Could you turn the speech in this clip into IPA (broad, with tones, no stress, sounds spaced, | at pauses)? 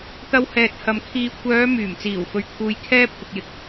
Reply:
t̪ ɐ˧ w h ɛː˨ t̚ h ɐ˨ m kʰ iː˨ kʷʰ œː˨˧ m yː˨˩ m t͡s iː˨˩ w f ɵ˨ ɥ kʰ uː˧ j kʰ ɛː˥ pʰ ʊ˧ k̚ j ɪ˨˥ k̚